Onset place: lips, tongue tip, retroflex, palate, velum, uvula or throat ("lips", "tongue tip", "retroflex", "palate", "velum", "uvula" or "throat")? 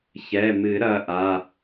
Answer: palate